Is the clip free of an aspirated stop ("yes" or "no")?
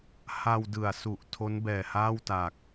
no